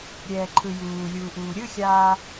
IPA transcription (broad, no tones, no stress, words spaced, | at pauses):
ɾʲɛːǃʰɯjuːlʲuː ʔuːɾʲɯxʲaː